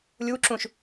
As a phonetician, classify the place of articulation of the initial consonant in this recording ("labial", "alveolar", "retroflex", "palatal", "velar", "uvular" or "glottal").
alveolar